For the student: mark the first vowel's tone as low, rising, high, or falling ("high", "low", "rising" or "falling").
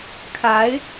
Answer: rising